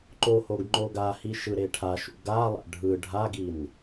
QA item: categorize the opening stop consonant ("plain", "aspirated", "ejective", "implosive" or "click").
click